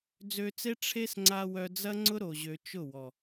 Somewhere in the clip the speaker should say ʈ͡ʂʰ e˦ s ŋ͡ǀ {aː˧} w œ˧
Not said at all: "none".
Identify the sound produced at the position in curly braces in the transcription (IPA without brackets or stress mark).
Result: a˧